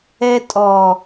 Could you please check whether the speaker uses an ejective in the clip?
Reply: yes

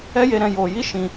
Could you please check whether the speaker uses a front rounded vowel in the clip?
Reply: no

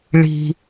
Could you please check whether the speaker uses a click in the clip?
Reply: no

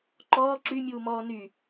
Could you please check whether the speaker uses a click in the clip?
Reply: yes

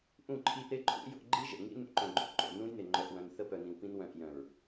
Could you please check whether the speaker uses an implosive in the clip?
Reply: no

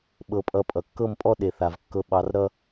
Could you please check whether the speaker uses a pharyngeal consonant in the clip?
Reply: no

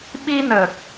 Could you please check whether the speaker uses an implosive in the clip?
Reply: yes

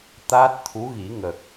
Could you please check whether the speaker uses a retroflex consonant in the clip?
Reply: no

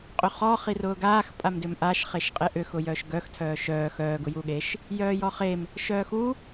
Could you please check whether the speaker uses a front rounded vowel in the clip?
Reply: yes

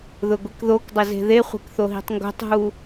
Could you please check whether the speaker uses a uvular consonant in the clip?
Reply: yes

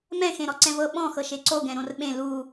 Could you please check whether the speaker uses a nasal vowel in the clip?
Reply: yes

